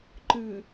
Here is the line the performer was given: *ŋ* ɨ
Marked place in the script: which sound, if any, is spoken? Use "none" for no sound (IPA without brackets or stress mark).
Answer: ǃ